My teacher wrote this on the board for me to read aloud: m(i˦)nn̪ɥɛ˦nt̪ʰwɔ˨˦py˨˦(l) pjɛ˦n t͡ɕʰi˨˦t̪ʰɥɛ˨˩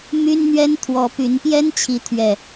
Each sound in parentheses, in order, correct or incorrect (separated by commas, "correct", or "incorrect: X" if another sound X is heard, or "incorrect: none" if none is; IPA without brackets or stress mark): incorrect: y˦, incorrect: n